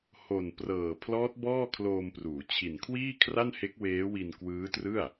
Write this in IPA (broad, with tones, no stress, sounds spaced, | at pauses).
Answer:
h o˨˩ n p r ɤː˨˩ pʰ l ɔː˦˥ t̚ b ɔː˥˩ kʰ l oː˧ m p r uː˩˦ t͡ɕʰ i˨˩ n kʰ w iː˥˩ kʰ r a˥˩ n h e˦˥ k̚ w eː˦˥ w i˧ n k w ɯː˦˥ t r ɯ˥˩ a̯